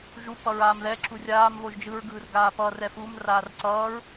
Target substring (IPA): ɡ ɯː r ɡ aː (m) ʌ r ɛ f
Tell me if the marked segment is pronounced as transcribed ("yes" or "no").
no